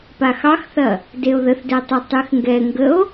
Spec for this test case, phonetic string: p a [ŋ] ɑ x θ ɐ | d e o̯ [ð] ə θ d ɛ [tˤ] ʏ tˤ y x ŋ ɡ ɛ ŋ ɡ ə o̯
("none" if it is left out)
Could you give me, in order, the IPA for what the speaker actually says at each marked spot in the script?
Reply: x, ð, tˤ

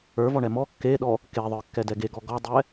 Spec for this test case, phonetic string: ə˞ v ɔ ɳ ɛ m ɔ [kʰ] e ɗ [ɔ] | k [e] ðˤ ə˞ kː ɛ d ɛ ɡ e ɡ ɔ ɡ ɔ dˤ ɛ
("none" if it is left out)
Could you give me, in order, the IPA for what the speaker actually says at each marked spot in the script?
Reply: kː, ɔ, e

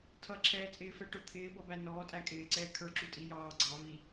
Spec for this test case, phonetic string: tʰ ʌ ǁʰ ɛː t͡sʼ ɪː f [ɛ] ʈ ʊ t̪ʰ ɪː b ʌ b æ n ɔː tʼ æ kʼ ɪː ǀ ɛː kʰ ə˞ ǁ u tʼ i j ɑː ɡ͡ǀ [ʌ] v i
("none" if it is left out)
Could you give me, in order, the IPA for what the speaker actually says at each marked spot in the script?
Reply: ɛ, ɑ

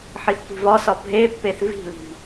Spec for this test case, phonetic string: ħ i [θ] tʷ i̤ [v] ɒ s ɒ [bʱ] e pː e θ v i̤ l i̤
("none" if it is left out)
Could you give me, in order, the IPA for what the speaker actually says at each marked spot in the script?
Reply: θ, v, bʱ

